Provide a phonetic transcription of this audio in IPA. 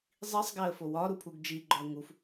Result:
zˤ i sˤ ɡ æ ə̯ f o w ɒ ɾ u pʰ u ɡ d͡ʒ i ɡ͡ǃ ɒ ə̯ ŋ u f

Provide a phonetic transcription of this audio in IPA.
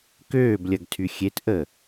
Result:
k øː b lʲ ɐ ɡ tʰ y xʲ e t ʔ ə

